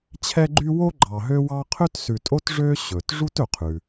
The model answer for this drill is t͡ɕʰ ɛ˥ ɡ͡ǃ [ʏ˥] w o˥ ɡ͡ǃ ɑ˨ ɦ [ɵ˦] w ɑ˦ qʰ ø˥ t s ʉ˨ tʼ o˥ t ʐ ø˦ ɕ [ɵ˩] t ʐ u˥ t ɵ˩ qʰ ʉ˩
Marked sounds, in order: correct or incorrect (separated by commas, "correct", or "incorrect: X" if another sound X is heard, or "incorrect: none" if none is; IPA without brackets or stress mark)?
incorrect: y˥, incorrect: ø˦, correct